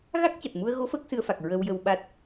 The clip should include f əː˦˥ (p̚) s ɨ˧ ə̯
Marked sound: incorrect: k̚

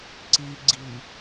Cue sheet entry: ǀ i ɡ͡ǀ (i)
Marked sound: correct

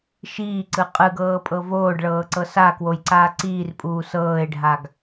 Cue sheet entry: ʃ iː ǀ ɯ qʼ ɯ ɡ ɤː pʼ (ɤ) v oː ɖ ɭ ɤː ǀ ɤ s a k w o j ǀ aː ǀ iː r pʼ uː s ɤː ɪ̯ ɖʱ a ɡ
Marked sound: correct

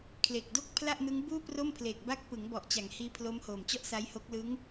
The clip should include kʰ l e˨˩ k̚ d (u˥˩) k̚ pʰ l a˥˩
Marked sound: incorrect: o˥˩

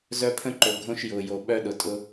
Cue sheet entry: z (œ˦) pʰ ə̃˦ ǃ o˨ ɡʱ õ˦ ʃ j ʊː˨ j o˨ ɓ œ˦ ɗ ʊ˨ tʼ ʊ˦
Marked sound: correct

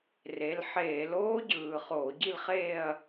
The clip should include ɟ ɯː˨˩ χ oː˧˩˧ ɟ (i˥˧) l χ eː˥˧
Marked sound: correct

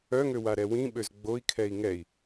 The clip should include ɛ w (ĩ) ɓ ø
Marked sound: correct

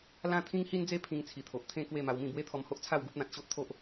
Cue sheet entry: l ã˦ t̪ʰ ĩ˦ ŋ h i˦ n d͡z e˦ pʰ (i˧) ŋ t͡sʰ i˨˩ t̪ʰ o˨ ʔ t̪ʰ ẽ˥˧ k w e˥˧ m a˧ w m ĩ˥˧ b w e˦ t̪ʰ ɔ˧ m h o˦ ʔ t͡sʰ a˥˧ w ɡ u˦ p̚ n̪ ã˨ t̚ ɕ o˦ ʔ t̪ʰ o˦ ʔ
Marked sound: incorrect: ĩ˧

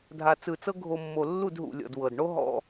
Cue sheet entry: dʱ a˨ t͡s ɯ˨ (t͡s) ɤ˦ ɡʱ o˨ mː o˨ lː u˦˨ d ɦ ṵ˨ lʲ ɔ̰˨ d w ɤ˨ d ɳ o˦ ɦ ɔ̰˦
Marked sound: correct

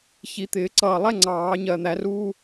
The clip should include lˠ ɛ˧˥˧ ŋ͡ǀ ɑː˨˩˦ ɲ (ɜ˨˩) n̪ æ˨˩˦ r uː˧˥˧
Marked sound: correct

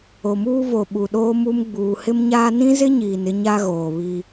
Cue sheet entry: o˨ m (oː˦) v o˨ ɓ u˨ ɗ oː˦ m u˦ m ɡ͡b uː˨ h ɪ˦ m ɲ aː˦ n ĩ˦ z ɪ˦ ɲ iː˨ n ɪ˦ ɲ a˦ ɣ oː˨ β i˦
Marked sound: incorrect: uː˦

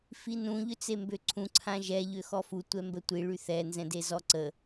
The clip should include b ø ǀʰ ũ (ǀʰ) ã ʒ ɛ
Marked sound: correct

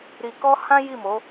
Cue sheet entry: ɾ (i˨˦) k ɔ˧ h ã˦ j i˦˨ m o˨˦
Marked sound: incorrect: i˨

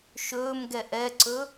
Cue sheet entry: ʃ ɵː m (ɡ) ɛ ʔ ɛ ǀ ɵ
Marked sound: correct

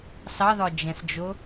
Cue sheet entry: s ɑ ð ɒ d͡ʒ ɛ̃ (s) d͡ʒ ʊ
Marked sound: correct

